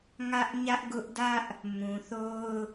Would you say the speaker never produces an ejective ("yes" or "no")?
yes